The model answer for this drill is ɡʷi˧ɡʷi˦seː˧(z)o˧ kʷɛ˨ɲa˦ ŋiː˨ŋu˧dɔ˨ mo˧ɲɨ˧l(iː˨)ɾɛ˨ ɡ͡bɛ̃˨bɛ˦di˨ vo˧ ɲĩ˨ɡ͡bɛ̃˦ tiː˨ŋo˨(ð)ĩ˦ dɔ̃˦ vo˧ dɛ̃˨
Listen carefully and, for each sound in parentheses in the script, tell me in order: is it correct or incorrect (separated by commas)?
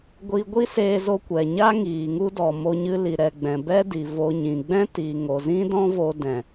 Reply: correct, incorrect, incorrect